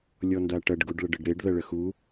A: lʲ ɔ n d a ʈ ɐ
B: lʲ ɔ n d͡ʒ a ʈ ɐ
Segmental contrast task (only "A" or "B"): A